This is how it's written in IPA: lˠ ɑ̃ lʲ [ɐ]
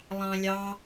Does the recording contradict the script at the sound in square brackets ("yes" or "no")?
yes